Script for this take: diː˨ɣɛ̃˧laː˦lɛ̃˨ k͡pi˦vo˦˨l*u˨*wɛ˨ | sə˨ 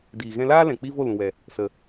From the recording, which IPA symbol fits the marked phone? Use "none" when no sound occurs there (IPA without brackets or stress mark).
ũ˨